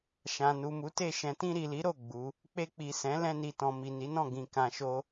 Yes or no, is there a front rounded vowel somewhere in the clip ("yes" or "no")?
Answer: no